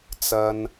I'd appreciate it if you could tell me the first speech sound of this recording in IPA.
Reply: t͡s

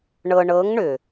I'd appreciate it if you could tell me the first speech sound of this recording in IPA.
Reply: ɳ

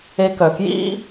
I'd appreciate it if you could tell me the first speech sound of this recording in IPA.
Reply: e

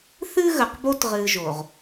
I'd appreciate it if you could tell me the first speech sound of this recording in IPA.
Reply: θ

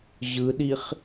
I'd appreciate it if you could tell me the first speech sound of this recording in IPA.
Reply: ʑ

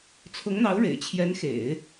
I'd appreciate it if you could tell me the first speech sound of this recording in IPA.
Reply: t͡sʰ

